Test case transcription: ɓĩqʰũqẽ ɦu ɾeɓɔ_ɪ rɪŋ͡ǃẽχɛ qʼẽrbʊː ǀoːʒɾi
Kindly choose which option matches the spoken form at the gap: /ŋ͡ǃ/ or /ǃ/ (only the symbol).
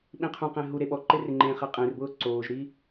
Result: ǃ